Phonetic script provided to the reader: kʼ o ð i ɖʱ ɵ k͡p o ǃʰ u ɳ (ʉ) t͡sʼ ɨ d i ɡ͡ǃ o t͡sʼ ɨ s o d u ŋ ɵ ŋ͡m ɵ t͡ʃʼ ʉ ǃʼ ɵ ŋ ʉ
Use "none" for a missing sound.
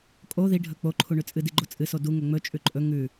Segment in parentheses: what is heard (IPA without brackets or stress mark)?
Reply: ʉ